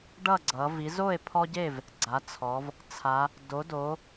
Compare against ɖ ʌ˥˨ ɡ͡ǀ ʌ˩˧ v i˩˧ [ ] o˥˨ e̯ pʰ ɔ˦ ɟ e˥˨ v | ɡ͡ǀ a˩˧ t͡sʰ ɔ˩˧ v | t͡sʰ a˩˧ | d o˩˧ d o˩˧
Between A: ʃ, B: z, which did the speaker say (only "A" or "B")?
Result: B